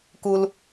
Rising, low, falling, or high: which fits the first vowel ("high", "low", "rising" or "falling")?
high